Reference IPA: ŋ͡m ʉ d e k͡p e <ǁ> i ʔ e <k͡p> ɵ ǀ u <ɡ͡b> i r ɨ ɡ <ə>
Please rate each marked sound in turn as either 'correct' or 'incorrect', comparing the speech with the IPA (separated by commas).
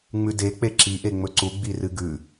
correct, incorrect, correct, incorrect